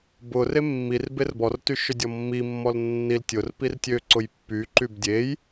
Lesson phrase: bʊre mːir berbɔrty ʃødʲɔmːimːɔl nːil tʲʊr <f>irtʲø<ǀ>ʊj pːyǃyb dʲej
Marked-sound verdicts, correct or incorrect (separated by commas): incorrect, correct